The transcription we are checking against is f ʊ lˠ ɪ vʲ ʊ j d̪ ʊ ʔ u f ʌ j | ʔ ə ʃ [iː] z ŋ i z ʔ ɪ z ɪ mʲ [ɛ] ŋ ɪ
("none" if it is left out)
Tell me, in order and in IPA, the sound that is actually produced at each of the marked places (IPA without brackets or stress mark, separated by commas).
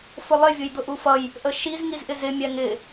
i, ɛ